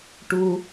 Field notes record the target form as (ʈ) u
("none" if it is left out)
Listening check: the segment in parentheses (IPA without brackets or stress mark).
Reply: ʈ